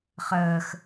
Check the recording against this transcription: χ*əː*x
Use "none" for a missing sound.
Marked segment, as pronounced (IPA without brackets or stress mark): əː